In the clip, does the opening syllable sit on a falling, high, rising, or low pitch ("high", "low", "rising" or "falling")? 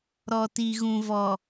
low